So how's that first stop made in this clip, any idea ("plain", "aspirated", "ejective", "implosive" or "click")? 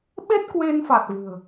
implosive